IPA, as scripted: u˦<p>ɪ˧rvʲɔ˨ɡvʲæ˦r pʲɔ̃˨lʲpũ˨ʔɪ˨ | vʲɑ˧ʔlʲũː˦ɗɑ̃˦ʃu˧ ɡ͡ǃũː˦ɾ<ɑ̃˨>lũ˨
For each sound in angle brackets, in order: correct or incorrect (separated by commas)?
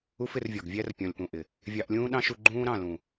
incorrect, incorrect